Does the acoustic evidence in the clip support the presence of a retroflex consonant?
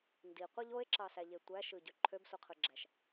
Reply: no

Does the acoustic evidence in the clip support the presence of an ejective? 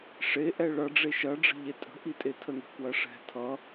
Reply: yes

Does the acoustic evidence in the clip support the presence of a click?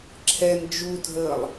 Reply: yes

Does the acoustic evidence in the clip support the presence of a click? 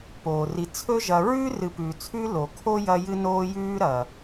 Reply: no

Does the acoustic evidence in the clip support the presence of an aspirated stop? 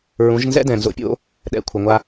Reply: yes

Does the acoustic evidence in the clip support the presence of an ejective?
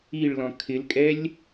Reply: yes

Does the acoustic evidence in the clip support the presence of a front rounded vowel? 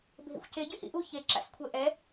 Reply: yes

